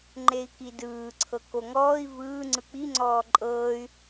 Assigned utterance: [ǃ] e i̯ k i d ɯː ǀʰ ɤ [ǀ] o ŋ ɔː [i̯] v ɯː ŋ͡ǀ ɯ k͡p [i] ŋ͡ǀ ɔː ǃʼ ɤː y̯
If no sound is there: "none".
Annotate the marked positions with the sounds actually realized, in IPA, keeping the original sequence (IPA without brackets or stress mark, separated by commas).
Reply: ŋ͡ǃ, k, i̯, i